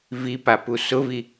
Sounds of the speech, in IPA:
vipapu sʊvi

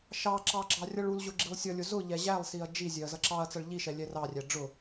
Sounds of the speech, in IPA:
ʃɑǁɑ ɡ͡ǁɑrʲʌɭulʑʊ ɡ͡ǁilˠsʲʌlʲʊ zʊ ʎɛʑælˠsiɐ̯ d͡ʒizʲɛɐ̯ zʌǁɑɐ̯t͡sʌɭ ʎiʃɛ lʲɛrɑrʲæ ɖ͡ʐʊ

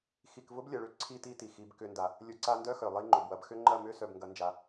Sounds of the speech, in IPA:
xi˨kvʊ˦blʲɐ˨ɭʏ˦˨ ǀʰi˧ ti˦ti˨xi˨˦b kʏ˧nda˨ | lʲʊ˨˦ ǀa˧ndœ˦ xœ˨lˠi˦ŋ͡ǃʊ˨bwɐ˧b xʏ˦ŋ͡ǃɐ˦˨ mʏ˦ sœ˨bŋɡɐ˨˦nd͡ʒa˨

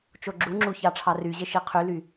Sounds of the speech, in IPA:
t͡ʃoɡ͡ǁuŋ͡ǁu çɑʈ͡ʂʰɑryʑe ʃiqʰyly

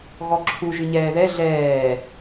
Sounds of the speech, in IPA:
ɣɔǁʰu ʒɨɲɛːðɛ ɮɛː

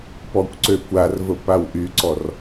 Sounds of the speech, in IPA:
pɔkʷǀøkʷarvə pawʔyǀɔr

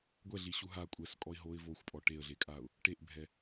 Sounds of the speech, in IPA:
ɡʷɛɮi ɕuɦa kʷʼɛskʼɔɪ̯ ɦoɪ̯ voxʷpʼɔ ʈeə̯ɮekʼaːʊ̯ | ʈeʔbʱɛ

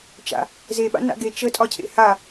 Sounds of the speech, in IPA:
t͡ʃa̰ | zeɓa̰ na̰ɡe t͡ʃətʼɒcʰḛ ha

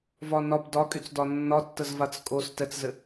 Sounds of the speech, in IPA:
vɒnɒb dɒkʼyt͡sdɒ nːɒtːəzvat͡s kʼos tɛt͡szɘ

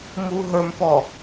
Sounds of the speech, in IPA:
muɦə˞mpɔ

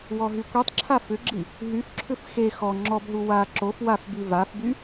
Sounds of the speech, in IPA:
wɔɦykʷitˤǁʰa fʏɡ͡ǁi | ɦyfǁʰʏf xe xɔ ŋ͡ǁɔbɦu wa ǁof wafbi vafby

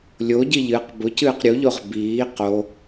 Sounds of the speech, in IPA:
lʲoɟi ʎɨq bʊcɨːq ɾʲuʎoʁ biː qo

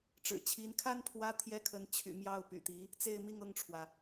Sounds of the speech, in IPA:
ʈ͡ʂɻ̩˨˩t͡ɕʰi˧˥nkʰa˥n pʰwä˥ t̪ʰjɛ˥kʰə˧˥n t͡ɕʰy̰˨˩mjɑ˥˩ʊ̯ py̰˨˩t̪i˧˥ | t͡se˥˧ɪ̯mi˥˧ŋɤ˥˩ŋʈ͡ʂʰwä˩

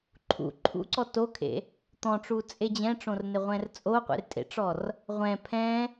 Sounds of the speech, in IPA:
ǃʰṵ ǃʰṵǀɔ tokʰḛ | t̪ɔ̃ʈ͡ʂut͡sʼe d͡ʑɛ̃ʈ͡ʂõrneʁʷɛ̃r t͡sʼoqʷḛrtʼḛʈ͡ʂɔr | ʁʷɛ̃ pʰɛ̃

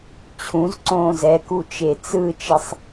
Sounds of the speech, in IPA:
t͡ɕʰũz ǀõːzɛku t͡ʃet͡sɯt͡ʃesˤ

